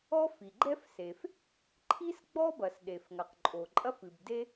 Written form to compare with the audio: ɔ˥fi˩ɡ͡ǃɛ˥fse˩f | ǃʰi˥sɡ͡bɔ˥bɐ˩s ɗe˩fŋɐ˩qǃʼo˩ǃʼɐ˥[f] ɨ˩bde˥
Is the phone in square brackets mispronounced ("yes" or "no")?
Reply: no